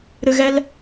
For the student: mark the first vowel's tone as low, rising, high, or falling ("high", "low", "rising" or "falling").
low